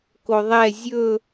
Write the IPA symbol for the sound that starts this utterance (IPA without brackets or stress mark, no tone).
k